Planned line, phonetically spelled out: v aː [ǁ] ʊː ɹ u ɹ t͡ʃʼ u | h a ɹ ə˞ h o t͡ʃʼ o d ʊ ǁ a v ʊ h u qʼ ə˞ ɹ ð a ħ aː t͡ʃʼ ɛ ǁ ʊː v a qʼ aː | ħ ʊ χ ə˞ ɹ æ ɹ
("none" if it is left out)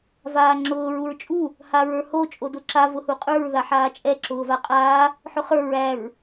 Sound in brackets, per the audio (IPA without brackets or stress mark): ŋ͡ǁ